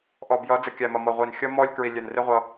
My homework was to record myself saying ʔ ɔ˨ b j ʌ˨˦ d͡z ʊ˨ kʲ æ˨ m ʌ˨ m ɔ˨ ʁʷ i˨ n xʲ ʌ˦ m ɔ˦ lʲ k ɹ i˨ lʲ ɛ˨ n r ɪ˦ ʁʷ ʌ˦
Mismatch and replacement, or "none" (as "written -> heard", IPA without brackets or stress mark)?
ʊ˨ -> ə˨